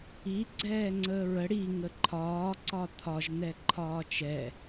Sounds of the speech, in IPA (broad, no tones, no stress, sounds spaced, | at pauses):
i ɡ͡ǀ ɛː ŋ͡ǀ əː ɹ ə ɽ i ŋ ə ǃʰ ɒː ǀ ɒ t̪ʰ ɒ ʒ n̪ ɛ ǃʰ ɒː t͡ʃ ɛ